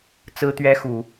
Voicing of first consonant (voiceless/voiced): voiceless